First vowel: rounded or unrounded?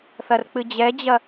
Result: unrounded